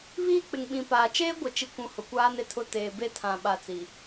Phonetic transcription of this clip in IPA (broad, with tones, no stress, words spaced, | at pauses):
βiː˦˨k͡pɪ˨ŋ ɓĩ˨paː˨ t͡ʃeː˦ɡʷɪ˨t͡ʃi˨kʷũ˨ hʊ˨kʷaː˦ne˨tʰʊ˦ teː˨be˦tʰã˨ ɓa˨t͡si˨